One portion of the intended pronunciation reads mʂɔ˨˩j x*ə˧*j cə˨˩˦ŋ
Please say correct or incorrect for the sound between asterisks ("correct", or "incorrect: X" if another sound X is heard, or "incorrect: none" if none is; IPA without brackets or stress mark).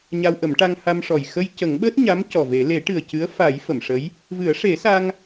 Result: correct